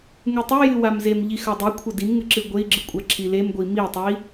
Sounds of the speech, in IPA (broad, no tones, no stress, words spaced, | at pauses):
ŋʉtˤejɨ wamzemʎi xɐdˤikʷʰɐ dimŋɨ ǁɨɡʷei̯ɡ͡ǁɨ kʷʼaǁʰilemɡʷi mitˤui̯